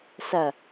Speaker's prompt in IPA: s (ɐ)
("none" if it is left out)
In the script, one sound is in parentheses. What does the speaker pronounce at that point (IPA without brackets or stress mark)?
ɐ